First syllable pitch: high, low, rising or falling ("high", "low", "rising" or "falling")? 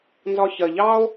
low